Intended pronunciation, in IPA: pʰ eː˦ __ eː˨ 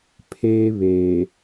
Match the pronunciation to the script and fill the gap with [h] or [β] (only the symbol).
β